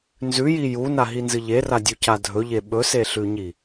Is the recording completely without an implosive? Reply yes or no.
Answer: no